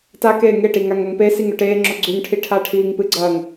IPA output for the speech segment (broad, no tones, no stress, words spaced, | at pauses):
takeː ŋeʈi ŋaŋɐŋpesiŋ ɵʈeːŋ͡ǁo ɡ͡ǀʉŋʈʰi ʈʰaʈʰiːŋpɨɡ͡ǀɐːŋ